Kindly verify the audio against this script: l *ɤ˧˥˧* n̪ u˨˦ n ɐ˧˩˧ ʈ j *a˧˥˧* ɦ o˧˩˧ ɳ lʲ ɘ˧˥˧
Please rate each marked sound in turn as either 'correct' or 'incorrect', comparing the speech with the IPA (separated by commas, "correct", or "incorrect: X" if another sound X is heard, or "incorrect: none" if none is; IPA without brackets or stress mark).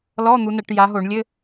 incorrect: ɔ˧˥˧, incorrect: a˨˦